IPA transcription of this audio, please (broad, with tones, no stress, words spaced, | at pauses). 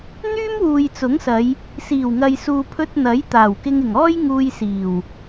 n̪yː˥mwuː˨jt͡sʊ˨˥ŋsɐ˨˧j | siː˨˩wŋɐ˨jsuː˨pʰɵ˧t̚ n̪ɐ˨˥jt̪aː˨˩wkɪ˧ŋɪ˨˩ŋ ɔː˥j ŋuː˧jsiː˨˩w